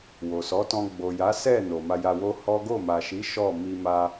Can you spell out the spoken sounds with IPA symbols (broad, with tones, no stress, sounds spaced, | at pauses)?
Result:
w o˨ s ɔ˨˦ t ɔ̃˧ ɡ͡b o˨ j a˨˦ s ɛ˦˨ n o˨ m a˧ j a˧ w o˦ h ɔ˦ ɡ o˦˨ m a˨ ʃ i˨˦ ʃ ɔ˦˨ m i˧ m a˧